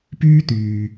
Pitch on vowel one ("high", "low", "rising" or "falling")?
high